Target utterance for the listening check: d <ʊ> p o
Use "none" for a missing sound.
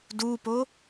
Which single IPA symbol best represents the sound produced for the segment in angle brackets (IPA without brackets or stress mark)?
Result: u